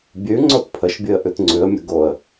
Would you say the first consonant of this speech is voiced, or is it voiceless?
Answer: voiced